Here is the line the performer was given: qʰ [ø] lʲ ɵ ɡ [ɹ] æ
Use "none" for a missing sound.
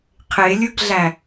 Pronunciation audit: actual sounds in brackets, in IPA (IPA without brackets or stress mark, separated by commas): e, ɮ